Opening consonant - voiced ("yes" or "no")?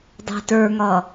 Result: yes